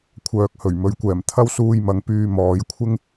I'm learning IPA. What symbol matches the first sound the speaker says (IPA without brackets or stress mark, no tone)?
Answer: kʷʰ